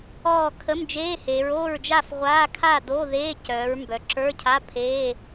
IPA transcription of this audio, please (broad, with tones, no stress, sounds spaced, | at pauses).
ɔː˥˨ kʰ ə˧˥˧ m d͡ʒ eː˧˥˧ h eː˩˧ ɹ oː˥˨ ɹ d͡ʒ a˥˨ f ʁʷ aː˧˥˧ kʰ a˥˨ d o˧˥˧ ð eː˧˥˧ c œː˩˧ ɹ m b œ˩˧ ǁ ə˞˧˥˧ cʰ a˧˥˧ pʰ eː˧˥˧